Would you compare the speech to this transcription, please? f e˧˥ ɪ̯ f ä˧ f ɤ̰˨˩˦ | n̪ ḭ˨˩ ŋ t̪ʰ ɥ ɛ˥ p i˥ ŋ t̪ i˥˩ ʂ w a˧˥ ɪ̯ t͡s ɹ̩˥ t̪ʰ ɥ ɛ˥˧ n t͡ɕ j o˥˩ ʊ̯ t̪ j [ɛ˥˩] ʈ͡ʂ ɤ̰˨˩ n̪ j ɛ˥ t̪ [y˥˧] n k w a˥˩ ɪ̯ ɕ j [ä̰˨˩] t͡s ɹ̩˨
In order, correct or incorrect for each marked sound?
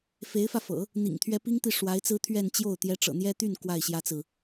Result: incorrect, correct, incorrect

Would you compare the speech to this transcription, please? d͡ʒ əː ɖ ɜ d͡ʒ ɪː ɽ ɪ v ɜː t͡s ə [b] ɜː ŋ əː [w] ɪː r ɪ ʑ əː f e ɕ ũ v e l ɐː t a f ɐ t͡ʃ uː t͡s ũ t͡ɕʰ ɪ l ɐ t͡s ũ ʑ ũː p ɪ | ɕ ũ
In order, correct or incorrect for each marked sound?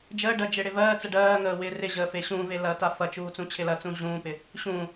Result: incorrect, correct

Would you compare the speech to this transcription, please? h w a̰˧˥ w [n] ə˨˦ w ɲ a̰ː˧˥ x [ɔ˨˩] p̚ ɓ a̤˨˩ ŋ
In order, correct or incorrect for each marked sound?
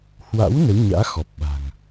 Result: correct, correct

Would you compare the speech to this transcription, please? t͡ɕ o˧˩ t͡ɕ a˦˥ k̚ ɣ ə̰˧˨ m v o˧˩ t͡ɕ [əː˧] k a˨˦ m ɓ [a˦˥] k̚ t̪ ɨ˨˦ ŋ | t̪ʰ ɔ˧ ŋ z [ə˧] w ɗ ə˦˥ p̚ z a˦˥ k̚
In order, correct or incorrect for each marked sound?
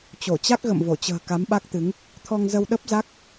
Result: incorrect, correct, correct

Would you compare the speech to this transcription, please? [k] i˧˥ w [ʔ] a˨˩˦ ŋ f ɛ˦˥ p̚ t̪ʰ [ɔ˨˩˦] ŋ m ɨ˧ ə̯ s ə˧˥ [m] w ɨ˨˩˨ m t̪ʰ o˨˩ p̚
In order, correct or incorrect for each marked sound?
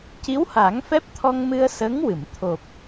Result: incorrect, incorrect, incorrect, incorrect

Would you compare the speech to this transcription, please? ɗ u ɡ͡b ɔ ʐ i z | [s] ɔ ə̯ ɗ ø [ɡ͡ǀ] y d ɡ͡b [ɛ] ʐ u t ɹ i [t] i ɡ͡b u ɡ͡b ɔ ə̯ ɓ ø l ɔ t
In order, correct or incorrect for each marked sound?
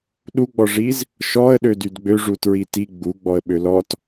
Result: incorrect, incorrect, incorrect, correct

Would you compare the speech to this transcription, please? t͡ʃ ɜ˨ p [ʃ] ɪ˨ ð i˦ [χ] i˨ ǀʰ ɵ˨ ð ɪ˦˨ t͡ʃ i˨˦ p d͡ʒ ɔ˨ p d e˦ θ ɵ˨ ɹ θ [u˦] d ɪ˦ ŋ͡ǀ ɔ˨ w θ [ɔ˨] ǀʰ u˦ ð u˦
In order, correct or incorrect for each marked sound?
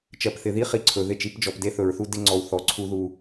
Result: incorrect, correct, correct, correct

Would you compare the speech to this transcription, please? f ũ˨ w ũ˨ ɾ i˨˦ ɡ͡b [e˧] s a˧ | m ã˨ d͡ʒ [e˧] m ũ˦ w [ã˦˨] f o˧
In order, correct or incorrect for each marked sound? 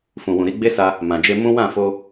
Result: incorrect, correct, correct

